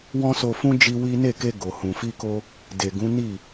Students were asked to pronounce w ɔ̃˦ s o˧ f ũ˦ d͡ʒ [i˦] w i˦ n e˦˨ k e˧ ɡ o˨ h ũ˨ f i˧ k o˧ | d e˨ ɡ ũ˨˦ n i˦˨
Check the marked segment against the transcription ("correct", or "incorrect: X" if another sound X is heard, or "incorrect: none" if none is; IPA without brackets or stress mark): correct